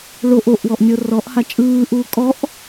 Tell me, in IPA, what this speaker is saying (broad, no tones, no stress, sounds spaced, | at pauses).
ɭ o ʔ o ʔ w ɔ ʔ nʲ ɤ r ɔ ʔ h a t͡ʃʼ ɯː ʔ uː kʼ ɔ ʔ